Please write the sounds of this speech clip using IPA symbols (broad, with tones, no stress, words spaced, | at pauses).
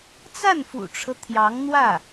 t͡sa˥˩nfṵ˨˩ʈ͡ʂʰɤ˦ t̪ʰjɑ˧˥ŋn̪wä˥˩